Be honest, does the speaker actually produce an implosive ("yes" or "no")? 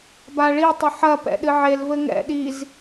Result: yes